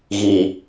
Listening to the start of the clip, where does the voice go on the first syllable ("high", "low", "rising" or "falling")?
low